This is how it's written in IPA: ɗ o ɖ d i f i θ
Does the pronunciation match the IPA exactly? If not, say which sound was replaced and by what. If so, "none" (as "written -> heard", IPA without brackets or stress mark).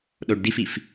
θ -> f